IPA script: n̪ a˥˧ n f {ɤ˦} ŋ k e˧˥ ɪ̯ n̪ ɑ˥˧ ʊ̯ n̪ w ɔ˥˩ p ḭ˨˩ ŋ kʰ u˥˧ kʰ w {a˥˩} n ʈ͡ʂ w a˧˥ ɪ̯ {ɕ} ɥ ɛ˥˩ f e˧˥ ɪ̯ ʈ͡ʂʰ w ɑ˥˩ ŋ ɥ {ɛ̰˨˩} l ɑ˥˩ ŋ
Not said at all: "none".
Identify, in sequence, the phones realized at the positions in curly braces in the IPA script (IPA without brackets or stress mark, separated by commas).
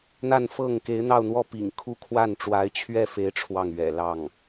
ɤ˥˩, a˥˩, t͡ɕʰ, ɛ̰˨˩